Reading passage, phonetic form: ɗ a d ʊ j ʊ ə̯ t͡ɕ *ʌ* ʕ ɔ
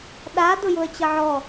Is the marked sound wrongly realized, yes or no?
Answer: no